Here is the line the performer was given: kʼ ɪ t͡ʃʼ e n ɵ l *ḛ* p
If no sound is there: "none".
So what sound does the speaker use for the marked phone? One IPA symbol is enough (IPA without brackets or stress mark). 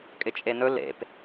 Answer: ḛ